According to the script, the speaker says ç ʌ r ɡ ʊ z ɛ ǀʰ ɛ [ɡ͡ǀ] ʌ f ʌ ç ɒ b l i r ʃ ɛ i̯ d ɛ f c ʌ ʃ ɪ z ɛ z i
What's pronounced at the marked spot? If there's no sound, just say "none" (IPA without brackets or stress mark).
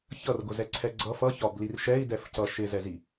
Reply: ɡ͡ǀ